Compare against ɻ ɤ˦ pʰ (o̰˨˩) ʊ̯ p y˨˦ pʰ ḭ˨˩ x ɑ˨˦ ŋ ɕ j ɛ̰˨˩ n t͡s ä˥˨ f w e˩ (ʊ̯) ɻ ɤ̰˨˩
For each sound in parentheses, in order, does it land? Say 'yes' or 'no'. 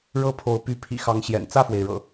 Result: no, no

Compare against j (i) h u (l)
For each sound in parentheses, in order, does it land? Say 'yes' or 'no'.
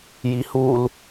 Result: yes, yes

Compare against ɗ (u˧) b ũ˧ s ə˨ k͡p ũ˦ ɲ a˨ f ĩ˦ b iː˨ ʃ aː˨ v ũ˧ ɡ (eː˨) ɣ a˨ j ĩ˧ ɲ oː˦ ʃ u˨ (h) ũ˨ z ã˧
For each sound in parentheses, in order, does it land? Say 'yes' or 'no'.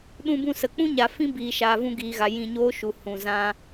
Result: no, no, yes

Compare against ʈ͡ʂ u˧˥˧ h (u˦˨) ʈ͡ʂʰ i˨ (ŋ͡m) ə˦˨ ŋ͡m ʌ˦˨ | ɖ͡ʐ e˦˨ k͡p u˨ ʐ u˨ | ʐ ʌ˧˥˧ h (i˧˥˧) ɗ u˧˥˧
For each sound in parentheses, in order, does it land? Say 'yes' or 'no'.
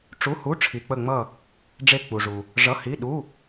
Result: no, no, yes

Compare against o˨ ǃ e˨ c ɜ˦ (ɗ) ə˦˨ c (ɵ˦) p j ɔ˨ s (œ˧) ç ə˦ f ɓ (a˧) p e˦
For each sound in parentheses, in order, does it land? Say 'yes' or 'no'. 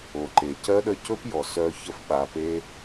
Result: yes, yes, yes, yes

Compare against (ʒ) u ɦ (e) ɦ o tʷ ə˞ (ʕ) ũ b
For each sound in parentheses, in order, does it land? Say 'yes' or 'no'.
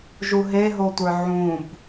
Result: yes, yes, yes

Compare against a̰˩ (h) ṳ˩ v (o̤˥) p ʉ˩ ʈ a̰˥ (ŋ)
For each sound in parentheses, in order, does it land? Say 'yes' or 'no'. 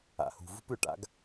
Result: yes, no, no

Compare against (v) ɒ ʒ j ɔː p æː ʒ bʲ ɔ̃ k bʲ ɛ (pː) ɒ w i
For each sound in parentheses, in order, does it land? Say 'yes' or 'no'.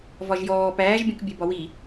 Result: yes, no

